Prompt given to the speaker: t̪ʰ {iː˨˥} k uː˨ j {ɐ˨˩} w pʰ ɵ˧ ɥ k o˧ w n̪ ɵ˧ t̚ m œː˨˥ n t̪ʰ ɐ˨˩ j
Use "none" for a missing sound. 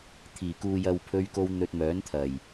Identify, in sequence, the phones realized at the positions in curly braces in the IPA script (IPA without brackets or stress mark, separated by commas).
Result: iː˨˩, ɐ˨